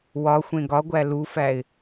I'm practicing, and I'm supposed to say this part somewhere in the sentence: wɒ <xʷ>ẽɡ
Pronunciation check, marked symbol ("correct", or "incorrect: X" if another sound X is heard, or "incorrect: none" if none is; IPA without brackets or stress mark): correct